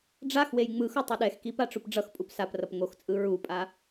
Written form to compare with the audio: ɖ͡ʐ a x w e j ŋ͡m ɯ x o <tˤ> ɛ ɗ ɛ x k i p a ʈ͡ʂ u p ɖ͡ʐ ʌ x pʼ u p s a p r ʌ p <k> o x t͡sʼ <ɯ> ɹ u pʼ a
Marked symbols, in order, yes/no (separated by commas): yes, no, yes